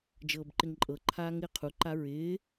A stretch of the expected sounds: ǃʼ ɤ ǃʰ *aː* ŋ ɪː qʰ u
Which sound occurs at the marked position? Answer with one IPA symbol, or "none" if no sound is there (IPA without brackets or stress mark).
aː